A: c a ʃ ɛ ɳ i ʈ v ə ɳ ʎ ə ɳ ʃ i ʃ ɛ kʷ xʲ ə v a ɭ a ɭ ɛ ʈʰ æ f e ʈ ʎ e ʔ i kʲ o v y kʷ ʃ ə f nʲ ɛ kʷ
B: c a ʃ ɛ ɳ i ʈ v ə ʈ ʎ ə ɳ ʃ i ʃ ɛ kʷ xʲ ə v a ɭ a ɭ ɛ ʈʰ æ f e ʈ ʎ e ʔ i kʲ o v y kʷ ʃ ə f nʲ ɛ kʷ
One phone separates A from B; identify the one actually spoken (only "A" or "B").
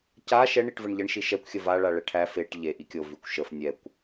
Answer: A